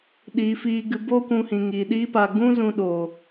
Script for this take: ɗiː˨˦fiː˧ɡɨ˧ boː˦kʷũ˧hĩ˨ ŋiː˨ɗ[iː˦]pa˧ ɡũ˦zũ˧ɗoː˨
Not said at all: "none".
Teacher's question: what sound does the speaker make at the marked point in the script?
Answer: iː˦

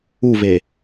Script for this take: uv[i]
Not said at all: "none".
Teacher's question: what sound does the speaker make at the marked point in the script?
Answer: e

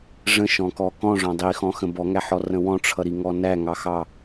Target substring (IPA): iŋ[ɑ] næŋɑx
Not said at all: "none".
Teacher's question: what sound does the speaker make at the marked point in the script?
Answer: ɔ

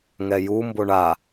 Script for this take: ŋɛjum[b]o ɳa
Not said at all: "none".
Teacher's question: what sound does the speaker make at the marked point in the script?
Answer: b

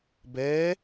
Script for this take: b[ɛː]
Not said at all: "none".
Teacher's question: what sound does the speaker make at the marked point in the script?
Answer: ɛː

